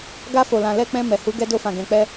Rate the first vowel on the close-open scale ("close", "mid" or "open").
open